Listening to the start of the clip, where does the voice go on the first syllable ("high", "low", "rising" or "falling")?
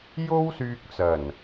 high